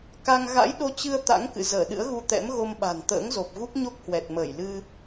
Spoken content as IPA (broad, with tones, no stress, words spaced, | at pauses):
ka˧ŋ ɣa̰˧˥jɗo˧ t͡ɕɨ˧ə̯ t̪a̰˧˥ŋkɨ̰˧˨ zəː˧˩ɗɨ̰˧˥ə̯ɣu˧t̪ɛ̰˧˥m ɣo˧mɓa̤˨˩n t̪ə̰ː˧˥ŋzo˨˩p̚ɣu˦˥k̚ ɲo˦˥k̚hwɛ˨˩t̚məː˧˩j lɨ˧